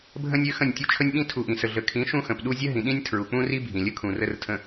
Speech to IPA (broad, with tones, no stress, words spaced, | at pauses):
bʱə̃˦nʲø˦xə̃˦˨nʲtʲu˦ t͡ʃʰə˦nʲɓĩ˦ tʰu˨ʔĩ˨sə˨ ɮə˨kʰĩ˨˦ ʃũ˦xə̃˨pɗu˦ zʲə˦ɦĩ˨ ɗĩ˦nʲtʰɹu˨k͡pũ˦ri˦ bʱĩ˨lʲə˦kʰũ˨ rə˨r tʰə̃˨